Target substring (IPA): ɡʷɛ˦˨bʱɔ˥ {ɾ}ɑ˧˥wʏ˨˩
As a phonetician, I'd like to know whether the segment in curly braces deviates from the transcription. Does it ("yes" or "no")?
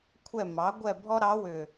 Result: no